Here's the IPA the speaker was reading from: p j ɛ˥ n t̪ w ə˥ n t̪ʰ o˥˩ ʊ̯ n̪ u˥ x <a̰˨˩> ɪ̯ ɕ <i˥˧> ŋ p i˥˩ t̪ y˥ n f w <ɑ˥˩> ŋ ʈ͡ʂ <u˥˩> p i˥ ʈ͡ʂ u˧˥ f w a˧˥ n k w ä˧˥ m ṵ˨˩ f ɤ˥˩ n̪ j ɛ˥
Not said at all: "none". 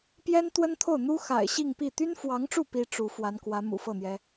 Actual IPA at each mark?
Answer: a̰˨˩, i˥˧, ɑ˧˥, u˥˩

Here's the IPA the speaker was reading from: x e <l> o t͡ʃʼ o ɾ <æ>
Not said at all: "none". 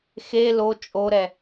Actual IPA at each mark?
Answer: l, ɛ

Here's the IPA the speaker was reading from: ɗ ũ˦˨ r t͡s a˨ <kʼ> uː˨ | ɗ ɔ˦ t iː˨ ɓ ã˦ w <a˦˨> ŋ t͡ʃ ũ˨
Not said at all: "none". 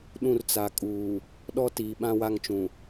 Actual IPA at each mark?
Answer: kʼ, a˦˨

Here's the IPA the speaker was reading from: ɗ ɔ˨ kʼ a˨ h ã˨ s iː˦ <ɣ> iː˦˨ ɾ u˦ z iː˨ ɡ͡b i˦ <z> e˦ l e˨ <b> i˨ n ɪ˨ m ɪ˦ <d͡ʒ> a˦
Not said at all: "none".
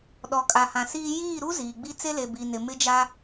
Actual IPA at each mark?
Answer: j, t͡s, b, d͡ʒ

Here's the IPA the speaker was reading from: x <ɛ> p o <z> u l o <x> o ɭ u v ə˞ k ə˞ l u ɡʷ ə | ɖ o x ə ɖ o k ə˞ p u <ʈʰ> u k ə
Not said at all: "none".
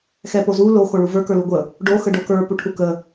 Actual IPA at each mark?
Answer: ɛ, z, x, ʈʰ

